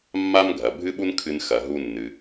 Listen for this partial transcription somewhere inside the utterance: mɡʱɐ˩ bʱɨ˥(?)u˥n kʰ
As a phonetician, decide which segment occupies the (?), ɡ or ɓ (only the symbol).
ɓ